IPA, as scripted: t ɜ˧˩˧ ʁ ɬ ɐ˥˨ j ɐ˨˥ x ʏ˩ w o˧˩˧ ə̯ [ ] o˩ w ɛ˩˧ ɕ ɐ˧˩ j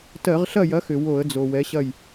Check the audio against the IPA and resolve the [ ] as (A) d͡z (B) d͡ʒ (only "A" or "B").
A